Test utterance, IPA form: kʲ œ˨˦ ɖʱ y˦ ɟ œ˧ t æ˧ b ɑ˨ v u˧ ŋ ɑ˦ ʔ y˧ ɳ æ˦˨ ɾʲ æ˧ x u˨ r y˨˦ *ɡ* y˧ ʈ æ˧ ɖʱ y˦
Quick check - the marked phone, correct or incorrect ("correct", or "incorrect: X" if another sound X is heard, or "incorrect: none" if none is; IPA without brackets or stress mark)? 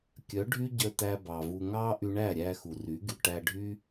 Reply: correct